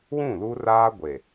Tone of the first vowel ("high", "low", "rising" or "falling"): falling